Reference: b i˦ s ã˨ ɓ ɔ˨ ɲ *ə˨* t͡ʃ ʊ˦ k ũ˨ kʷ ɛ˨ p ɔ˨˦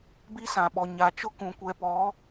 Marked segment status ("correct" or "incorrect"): incorrect